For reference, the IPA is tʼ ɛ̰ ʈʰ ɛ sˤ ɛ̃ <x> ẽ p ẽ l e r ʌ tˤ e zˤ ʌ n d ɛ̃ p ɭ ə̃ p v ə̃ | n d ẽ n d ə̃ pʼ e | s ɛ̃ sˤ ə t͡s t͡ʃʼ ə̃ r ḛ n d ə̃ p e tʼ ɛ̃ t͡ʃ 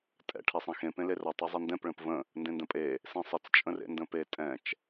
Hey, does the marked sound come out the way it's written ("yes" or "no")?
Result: yes